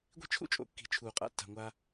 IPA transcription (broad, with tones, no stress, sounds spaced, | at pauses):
ɡʷ i̤˥ t͡ʃʰ ṵ˥ t͡ʃʼ o̰˨ kː i̤˨ t͡ʃʰ uː˩ qʼ a̰˨ tː a̤˩ ŋʷ aː˨